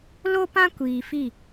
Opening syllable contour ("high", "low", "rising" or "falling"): high